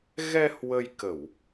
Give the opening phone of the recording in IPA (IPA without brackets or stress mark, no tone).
ɣ